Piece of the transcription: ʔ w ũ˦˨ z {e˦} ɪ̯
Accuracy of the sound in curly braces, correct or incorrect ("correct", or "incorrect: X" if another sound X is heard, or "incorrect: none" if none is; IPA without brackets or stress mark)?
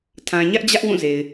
incorrect: e˨